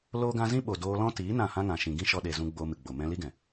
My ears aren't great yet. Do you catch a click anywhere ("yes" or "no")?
no